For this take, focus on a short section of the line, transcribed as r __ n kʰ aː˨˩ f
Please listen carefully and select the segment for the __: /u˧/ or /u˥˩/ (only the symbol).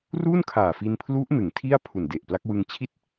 u˥˩